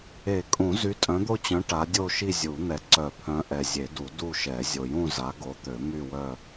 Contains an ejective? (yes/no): yes